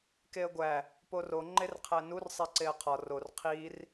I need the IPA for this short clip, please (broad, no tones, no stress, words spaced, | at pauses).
keə̯ɡʷæ | poro ŋ͡ǃerqʰænur sˤeǀeə̯qʰɒ ror qʰir